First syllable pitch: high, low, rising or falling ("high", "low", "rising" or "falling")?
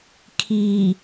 low